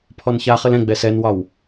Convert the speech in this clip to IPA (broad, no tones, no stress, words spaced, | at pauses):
pʰɔnçaχɘl ɛ̃ɡ͡bɛs ɛnwɒw